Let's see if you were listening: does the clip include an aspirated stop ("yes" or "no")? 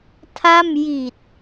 yes